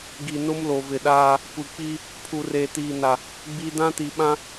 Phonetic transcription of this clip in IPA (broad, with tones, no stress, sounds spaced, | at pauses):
ɡ i˨ n ʊ˦ m l o˨ v ɪ˨ ɗ aː˦ | kʷ i˨ k͡p i˦ | pʰ u˨ r eː˨ t iː˨ n a˨ | ɡ͡b i˦ d ã˦ t i˨ ɓ ã˦